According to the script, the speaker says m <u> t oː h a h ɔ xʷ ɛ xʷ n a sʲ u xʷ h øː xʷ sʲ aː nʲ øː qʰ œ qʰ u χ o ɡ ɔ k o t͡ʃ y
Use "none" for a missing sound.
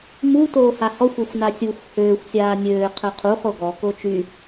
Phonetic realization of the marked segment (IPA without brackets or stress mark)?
u